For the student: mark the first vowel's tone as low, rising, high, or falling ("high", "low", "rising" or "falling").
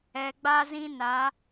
low